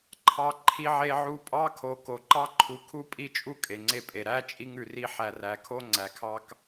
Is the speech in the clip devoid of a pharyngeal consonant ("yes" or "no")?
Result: no